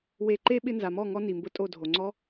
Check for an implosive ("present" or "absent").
present